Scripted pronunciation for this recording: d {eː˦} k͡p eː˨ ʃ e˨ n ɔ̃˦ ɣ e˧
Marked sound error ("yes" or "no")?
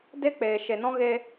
yes